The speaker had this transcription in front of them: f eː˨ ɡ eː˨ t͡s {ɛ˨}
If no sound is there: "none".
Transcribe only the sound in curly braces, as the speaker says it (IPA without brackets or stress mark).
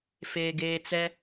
ɛ˦